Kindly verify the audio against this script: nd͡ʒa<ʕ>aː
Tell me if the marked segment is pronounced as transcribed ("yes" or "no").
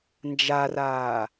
no